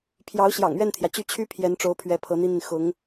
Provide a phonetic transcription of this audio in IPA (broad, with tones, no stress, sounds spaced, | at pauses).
pʰ j ɑ˧˥ ʊ̯ ɕ j ɑ̰˨˩ ŋ ɥ ɛ˥˩ n t̪ʰ j ä˩ t͡ɕ y˥˩ t͡ɕʰ y˥ pʰ j ɛ˧˥ n ʈ͡ʂ o˧˥ ʊ̯ pʰ ɥ ɛ˧˥ pʰ ɤ˧˥ n̪ i˥ n̪ i˨ n x ʊ˧˥ ŋ